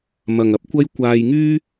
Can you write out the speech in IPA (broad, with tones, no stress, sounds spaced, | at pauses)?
m ɐ˨ ŋ ɐ˧ p̚ kʷ ɐ˥ j kʷ aː˧ j ŋ yː˥